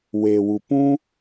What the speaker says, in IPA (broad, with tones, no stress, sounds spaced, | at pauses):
w e˨ w u˨ p ũ˦